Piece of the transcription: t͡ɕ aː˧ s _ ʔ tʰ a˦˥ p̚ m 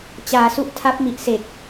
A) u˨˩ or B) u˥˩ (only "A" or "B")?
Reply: B